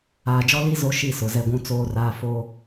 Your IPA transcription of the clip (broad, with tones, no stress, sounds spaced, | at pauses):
aː˨ d͡ʒ ɔ˦ l i˦ z o˦ ʃ i˦˨ s ʊ˨ z ɛ˦ ɡʷ ũ˦ t͡s oː˦ r aː˦ f oː˦